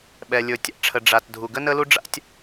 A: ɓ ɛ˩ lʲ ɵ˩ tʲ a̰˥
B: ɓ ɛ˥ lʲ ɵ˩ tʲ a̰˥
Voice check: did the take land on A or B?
A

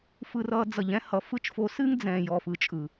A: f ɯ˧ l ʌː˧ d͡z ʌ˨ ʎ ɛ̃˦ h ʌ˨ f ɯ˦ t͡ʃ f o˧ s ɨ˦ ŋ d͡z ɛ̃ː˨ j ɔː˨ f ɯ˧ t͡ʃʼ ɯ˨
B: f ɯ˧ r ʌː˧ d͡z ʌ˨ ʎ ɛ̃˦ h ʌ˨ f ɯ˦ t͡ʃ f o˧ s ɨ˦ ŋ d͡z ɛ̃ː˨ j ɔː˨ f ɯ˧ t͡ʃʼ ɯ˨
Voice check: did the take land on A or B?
B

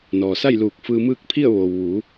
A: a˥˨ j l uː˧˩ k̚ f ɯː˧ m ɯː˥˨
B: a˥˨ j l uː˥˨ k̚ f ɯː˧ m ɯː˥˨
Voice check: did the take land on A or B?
A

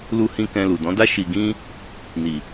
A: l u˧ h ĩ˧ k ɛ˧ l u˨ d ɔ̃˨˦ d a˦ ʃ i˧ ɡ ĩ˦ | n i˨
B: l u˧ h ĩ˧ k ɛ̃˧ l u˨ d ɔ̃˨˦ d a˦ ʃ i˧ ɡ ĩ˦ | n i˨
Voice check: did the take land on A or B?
B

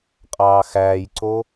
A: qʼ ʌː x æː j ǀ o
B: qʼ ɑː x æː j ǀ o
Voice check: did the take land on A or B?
B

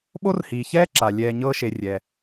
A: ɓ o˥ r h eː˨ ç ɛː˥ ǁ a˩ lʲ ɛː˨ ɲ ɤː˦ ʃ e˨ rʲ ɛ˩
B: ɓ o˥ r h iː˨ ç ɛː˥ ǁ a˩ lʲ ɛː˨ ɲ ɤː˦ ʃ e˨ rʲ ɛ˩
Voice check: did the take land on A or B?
B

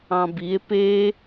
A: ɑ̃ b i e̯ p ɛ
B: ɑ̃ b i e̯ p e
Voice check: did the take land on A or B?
B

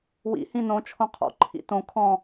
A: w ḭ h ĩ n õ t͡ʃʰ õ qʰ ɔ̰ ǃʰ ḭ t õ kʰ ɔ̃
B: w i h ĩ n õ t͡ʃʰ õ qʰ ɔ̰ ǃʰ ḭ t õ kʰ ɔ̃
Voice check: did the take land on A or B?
A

